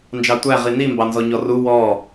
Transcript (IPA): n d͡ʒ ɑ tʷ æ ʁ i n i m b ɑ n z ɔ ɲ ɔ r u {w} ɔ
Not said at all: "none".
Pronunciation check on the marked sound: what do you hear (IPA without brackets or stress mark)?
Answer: w